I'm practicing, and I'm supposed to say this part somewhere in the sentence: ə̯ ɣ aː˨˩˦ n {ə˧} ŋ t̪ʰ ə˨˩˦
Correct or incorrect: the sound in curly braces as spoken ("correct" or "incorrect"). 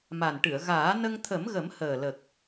correct